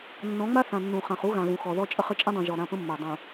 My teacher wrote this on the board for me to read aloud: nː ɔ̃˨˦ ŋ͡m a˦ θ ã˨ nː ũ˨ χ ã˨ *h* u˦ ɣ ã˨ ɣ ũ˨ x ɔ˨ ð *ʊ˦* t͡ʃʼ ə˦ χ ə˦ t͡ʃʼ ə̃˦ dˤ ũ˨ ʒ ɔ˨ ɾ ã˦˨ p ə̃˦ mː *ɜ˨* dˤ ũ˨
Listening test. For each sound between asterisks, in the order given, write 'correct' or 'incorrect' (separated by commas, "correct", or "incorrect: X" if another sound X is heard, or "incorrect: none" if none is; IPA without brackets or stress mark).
incorrect: χ, incorrect: ɔ˦, correct